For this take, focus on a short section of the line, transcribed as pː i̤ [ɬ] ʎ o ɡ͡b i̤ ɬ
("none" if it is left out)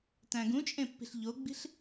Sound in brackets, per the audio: ɬ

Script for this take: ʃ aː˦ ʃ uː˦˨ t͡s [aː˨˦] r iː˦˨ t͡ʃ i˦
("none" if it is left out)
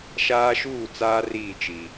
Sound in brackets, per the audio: aː˦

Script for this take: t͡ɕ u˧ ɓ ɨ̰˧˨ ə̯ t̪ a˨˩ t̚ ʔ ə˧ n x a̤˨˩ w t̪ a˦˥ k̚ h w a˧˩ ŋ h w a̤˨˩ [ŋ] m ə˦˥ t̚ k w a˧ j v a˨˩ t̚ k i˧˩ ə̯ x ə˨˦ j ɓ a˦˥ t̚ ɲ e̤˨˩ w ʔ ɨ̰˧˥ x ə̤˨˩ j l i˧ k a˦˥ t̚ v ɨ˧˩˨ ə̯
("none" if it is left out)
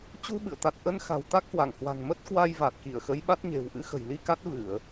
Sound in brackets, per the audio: ŋ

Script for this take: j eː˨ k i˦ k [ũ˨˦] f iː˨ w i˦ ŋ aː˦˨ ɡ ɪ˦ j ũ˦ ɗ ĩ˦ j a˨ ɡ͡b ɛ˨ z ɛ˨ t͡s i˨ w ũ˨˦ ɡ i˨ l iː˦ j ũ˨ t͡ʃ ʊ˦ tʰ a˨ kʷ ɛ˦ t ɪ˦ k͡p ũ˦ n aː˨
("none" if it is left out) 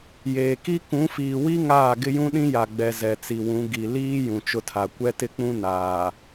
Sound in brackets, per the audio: ũ˨˦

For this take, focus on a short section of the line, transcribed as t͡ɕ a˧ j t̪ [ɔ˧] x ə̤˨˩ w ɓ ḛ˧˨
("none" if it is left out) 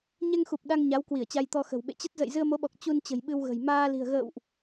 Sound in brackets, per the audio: ɔ˧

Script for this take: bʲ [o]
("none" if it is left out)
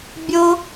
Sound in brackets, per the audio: o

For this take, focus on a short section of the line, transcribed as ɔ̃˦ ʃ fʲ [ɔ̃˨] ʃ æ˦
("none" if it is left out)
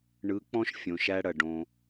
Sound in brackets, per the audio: õ˨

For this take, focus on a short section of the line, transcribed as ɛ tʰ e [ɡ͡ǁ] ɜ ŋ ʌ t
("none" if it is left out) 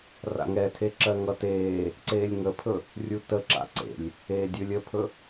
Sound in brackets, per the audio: ǁ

